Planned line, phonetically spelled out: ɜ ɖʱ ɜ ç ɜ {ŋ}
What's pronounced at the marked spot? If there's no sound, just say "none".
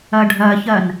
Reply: n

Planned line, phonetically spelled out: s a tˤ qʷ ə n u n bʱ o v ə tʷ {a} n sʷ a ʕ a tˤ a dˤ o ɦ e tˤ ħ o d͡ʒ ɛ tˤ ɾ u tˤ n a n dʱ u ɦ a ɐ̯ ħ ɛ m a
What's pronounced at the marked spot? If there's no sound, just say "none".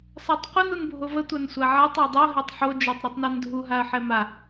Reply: a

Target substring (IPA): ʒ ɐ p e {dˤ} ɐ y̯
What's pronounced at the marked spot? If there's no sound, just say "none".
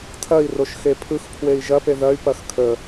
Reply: ð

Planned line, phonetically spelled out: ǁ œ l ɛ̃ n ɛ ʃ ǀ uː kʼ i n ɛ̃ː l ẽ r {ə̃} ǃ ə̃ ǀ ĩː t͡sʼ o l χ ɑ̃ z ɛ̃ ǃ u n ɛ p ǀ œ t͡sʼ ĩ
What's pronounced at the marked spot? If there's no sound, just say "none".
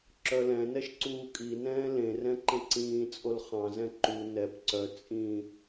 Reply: ɛ̃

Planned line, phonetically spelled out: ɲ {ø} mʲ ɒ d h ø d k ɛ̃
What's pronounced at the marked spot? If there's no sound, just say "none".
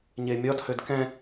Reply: e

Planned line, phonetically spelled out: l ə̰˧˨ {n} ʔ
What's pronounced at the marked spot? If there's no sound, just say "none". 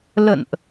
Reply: n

